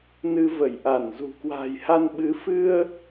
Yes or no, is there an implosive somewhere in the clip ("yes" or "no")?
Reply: yes